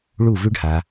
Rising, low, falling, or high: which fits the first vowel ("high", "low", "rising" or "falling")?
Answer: falling